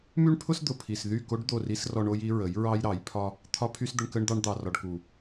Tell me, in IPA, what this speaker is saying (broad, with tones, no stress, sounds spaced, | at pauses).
m y˦ ɳ pʰ ʊ˦ s d̪ ʊ˨ pʰ i˨ s ð y˦˨ k o˦ ɖ d̪ o˦˨ r i˦ s r ɔ˧ ɳ o˦ j i˦ ɹ ə˨˦ j ɹ ɑ˦ j ɾ ɑ˨˦ j pʰ ɒ˦ | t̪ʰ ɒ˦ pʰ y˦ s d̪ ə˧ ɳ k ə˧ ɳ d̪ ɑ˧ ɳ d̪ ɑ˨ r ɒ˨ ɖ k u˨